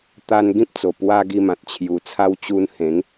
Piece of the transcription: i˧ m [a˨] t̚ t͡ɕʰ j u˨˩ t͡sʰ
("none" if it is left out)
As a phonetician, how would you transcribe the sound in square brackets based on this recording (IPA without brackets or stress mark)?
ã˨